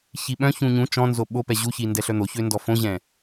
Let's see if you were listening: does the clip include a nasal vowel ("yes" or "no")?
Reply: yes